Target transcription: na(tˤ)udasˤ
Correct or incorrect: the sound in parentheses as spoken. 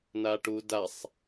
incorrect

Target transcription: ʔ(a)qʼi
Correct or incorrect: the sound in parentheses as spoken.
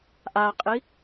correct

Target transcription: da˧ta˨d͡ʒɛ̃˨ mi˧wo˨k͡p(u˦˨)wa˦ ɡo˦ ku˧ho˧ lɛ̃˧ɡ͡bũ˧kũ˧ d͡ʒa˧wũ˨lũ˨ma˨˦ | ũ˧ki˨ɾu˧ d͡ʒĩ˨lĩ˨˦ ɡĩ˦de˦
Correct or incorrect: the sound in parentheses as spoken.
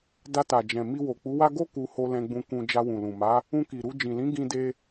incorrect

